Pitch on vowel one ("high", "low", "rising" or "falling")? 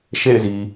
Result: falling